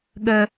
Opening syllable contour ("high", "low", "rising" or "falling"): high